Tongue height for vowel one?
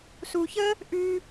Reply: high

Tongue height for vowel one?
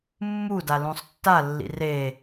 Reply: high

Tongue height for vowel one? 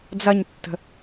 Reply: low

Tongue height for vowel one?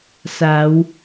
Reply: low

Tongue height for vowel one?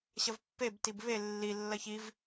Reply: low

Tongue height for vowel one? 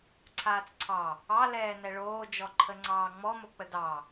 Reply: low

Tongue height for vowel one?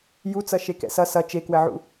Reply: high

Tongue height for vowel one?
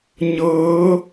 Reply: mid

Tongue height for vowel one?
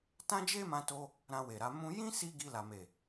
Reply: low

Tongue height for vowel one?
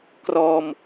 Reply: mid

